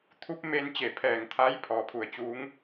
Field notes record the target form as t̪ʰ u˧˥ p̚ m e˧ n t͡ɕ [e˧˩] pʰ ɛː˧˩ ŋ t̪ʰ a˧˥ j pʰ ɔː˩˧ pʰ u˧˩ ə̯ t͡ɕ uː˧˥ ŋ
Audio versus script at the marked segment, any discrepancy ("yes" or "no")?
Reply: no